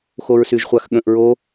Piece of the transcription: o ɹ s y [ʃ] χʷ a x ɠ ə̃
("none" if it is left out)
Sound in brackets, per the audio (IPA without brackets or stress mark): ʒ